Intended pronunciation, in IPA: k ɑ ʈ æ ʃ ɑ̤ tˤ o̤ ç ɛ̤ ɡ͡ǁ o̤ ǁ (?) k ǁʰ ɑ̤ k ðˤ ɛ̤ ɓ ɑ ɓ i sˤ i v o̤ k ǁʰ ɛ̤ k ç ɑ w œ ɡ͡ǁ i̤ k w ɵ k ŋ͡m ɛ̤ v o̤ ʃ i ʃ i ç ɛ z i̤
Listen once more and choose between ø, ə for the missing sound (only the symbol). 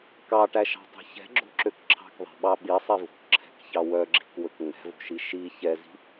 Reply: ø